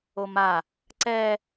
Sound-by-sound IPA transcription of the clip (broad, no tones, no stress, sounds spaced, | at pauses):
o m a | ǀ ɛ